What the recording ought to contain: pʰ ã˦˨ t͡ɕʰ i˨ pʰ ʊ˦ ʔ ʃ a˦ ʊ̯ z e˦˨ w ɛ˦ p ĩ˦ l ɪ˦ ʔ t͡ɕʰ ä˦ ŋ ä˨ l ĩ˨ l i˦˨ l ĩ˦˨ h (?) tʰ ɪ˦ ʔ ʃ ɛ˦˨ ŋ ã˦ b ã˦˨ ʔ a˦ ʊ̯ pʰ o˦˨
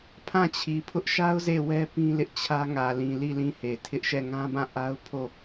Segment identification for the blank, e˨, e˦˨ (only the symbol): e˨